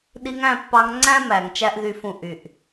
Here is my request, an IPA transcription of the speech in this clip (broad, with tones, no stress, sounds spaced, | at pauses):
ɗ i˧ ŋ æ̃˦˨ pː ɑ˧ ŋ ŋ͡ǀ æ̃˦ m æ˨ ŋ t͡ʃ æ˦ ʔ ð y˧ f ũ˧ ʔ y˨ ʔ